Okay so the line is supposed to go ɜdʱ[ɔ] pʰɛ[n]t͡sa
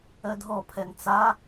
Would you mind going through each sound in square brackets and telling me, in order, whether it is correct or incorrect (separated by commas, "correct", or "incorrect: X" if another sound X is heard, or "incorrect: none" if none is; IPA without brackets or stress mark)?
correct, correct